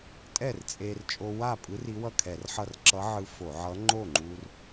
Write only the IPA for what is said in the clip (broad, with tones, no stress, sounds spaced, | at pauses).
tʼ ɛ˥˩ r t͡sʼ e˧ r t͡ʃʼ o˧ w a˥˩ pʼ ɯ˧˥ r i˧˥ w ʌ˥˩ kʰ ɛ˧˩˧ r ħ ʌ˥˩ r ǁ ʌ˧˥ ʕ ɯ˧ f o˧˩˧ ʕ ʌ˧˥ ŋ͡ǃ o˥˩ ŋ͡ǃ u˧ r